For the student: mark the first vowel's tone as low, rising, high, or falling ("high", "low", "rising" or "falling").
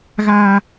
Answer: high